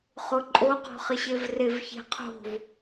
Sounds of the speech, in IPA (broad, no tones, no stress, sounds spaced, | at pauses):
χ ʊ ǃʼ o q ɔ̤ χ ɪ ɕ e v r e v ç e̤ qʰ o̤ v